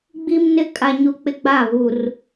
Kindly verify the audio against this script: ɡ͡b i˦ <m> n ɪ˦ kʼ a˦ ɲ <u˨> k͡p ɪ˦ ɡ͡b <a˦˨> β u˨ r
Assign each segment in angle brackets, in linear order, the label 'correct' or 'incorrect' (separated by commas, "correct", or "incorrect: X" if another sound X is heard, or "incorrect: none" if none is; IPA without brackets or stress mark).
correct, incorrect: u˦, correct